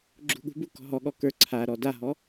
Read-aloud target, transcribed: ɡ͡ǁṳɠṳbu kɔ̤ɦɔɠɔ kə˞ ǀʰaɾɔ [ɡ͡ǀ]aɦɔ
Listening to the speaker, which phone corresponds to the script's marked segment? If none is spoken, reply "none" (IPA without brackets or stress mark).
d